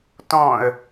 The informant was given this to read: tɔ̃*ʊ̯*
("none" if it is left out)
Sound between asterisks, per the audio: ə̯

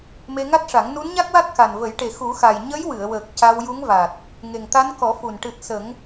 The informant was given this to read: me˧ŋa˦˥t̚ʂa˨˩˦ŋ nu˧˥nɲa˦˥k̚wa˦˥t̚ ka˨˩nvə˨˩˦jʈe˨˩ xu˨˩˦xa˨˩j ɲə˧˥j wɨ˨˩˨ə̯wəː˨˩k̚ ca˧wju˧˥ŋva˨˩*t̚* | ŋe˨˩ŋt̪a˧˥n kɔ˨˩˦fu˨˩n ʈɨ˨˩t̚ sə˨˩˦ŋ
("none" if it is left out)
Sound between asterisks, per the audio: t̚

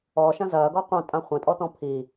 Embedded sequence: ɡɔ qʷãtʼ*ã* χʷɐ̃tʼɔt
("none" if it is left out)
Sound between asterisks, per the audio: ã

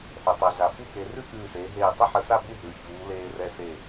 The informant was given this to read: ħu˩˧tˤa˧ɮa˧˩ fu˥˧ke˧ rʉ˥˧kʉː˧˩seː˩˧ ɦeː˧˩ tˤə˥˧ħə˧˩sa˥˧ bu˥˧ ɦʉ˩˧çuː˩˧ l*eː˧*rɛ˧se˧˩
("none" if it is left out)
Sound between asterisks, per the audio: eː˧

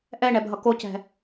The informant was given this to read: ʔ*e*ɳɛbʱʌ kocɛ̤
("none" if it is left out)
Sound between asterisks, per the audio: ɛ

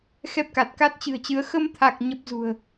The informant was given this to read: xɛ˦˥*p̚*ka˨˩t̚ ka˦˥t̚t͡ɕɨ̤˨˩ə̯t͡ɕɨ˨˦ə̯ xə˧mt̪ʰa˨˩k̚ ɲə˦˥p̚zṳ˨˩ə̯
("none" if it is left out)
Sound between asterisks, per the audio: p̚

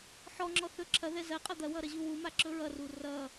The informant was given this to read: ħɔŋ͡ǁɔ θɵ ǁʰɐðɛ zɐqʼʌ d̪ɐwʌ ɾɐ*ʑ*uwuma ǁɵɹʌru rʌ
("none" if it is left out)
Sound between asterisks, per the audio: ʑ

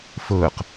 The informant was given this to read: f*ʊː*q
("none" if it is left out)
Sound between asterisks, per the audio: ʊː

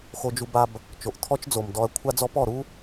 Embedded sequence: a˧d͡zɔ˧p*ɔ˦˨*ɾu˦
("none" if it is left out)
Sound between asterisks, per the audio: ɔ˦˨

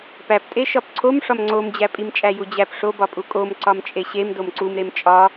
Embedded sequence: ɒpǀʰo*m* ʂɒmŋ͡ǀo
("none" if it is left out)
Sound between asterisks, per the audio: m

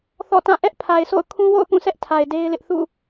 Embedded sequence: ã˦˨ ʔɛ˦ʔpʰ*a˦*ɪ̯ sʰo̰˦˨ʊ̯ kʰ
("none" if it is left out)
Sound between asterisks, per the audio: a˨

